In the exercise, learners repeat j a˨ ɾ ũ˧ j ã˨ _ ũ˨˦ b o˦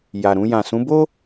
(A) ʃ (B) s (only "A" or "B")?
B